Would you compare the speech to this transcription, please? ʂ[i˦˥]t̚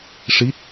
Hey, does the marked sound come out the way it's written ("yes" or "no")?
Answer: yes